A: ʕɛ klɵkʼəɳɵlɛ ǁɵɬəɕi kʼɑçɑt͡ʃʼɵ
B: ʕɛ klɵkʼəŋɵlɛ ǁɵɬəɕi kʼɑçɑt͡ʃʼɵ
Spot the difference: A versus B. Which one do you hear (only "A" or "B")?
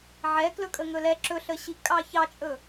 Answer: B